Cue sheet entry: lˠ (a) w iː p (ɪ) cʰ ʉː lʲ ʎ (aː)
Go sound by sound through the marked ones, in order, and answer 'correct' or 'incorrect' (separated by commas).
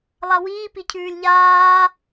correct, incorrect, correct